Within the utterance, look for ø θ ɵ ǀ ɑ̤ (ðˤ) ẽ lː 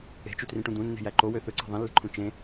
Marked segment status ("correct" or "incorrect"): correct